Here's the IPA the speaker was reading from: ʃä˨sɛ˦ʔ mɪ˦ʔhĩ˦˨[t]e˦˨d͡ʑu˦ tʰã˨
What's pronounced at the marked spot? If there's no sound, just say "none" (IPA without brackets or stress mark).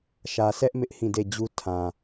d